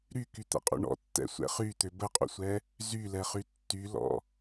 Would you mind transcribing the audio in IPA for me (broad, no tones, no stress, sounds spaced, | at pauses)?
ɾ y k y t̪ ɛ̰ qʼ ṵ ɳ ɔ̰ tː ɛ̰ sʷ ɛ̰ χ y t̪ ø b ə qʼ ṵ sʷ ɛ | z y l ɛ χ y tː y l ɔ̰